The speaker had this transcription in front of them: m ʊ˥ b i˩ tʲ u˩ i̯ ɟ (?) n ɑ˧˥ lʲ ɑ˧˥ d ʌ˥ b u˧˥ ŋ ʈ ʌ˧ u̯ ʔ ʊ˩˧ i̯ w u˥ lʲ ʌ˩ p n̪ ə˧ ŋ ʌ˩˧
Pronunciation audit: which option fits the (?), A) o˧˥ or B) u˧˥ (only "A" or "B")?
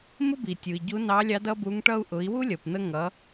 B